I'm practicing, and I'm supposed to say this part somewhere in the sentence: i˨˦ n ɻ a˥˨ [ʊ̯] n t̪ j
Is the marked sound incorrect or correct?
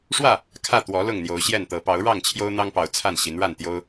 incorrect